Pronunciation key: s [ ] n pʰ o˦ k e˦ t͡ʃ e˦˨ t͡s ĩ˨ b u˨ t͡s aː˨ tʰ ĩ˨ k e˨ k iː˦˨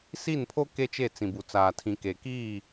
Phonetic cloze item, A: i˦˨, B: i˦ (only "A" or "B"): A